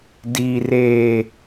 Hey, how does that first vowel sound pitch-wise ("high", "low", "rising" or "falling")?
low